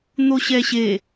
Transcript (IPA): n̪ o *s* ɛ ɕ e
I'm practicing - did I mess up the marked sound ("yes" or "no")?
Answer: yes